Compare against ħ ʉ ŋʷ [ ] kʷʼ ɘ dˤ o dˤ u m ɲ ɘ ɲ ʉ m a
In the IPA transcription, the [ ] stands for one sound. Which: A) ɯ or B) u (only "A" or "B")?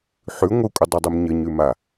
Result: A